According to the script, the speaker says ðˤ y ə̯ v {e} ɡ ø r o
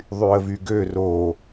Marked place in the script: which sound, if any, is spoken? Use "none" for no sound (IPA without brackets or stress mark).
y